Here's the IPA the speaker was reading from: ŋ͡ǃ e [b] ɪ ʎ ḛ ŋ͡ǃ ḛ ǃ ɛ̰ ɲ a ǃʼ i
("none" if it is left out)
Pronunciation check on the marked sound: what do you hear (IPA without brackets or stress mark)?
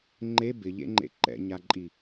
b